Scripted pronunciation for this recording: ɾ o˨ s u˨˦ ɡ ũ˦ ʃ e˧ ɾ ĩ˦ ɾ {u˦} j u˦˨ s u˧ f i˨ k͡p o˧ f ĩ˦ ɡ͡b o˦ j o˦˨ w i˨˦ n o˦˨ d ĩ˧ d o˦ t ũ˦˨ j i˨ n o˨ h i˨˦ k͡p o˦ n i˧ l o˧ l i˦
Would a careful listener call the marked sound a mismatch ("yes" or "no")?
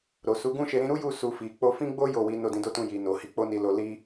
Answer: no